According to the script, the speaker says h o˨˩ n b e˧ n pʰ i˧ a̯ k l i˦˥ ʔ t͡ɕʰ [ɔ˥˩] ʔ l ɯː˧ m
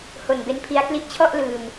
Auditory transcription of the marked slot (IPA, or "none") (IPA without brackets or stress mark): ɔ˥˩